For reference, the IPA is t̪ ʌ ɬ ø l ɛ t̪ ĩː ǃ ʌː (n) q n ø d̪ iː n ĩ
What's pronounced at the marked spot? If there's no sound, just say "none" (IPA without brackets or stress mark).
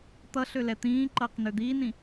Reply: none